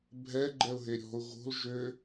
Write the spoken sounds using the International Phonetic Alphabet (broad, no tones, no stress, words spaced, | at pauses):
bʱɛ ɡ͡ǃɛʊ̯ɦeɾʲɔ̤ʊ̯ ɣo̤l ʒø